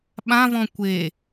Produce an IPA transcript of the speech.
ɓ ã v ɔ̃ kʷ e

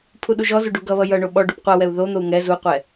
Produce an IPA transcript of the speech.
pʰ u ɗ u ʒ ɔ z u ɖ u ɡ ʌ β ʌ j ʌ ɳ o ɓ ɔ ɖ u p qʷ ʌ w ɛ u̯ ð o n̪ o u̯ ŋ ɛ z u qʷ ɛ

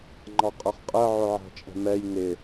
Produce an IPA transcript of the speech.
ŋ͡ǃ ɑ qʼ ʌ χ qʼ ɜ ʕ ʊ ʕ æ̤ t͡ʃʼ ɛ̤ m ɛ j n ɪ

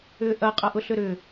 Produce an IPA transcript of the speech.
ʏː ʔ ɐ qʼ ɐ ʔ ʊ ɬ ʏ ɾ ʏː

